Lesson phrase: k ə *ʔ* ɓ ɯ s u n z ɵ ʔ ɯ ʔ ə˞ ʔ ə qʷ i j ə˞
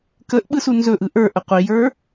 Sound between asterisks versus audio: correct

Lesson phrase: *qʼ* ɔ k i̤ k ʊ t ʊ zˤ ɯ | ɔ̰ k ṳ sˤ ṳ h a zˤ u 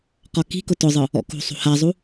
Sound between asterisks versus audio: incorrect: q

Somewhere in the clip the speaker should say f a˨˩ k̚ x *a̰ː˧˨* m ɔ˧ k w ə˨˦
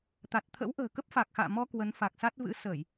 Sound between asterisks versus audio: correct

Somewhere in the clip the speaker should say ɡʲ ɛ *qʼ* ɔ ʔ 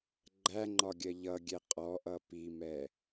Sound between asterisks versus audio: correct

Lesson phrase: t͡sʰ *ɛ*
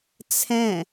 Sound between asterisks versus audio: incorrect: ɛ̃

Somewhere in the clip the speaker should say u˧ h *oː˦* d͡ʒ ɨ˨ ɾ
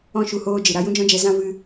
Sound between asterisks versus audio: incorrect: oː˧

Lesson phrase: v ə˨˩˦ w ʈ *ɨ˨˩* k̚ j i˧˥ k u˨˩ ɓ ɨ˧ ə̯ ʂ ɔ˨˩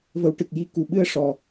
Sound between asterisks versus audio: correct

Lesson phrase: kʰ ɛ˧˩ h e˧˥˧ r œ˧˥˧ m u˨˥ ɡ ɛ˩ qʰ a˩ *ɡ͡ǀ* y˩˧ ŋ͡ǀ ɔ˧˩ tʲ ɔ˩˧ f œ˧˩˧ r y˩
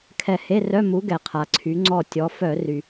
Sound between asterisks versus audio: incorrect: ǀʰ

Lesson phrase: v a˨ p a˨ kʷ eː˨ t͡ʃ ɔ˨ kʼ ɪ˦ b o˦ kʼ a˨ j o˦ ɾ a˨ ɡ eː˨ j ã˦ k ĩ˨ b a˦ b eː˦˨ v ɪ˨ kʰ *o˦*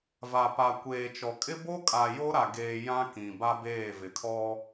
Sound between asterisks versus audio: incorrect: ɔ˦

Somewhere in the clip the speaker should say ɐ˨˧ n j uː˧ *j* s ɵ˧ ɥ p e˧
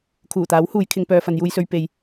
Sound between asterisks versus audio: correct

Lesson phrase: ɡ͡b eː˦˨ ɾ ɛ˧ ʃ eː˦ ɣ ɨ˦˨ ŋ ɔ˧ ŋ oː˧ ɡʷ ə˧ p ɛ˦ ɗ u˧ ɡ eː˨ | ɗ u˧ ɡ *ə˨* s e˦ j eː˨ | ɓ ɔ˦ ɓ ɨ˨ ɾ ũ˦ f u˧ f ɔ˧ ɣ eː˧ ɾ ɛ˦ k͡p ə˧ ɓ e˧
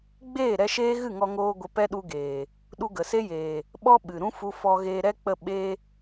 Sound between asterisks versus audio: correct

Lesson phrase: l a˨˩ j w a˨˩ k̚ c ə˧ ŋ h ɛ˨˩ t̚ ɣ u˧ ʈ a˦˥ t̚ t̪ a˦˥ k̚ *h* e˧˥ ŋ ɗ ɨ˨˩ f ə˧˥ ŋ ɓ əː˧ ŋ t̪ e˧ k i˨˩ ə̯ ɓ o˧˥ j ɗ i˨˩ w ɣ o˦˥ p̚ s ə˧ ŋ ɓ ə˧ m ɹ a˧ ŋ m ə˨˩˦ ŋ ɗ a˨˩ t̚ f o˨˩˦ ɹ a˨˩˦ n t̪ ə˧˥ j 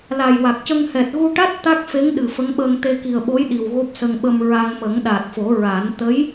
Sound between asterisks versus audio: incorrect: f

